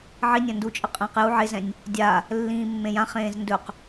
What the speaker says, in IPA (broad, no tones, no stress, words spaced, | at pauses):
ʕinʲã ndut͡ʃʼə qʼə̃ːqju ʕezɛ̃nʲ | dʲa | lːĩːmːẽjãχẽːz ndɵq